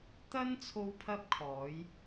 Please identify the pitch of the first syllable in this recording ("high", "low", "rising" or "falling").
high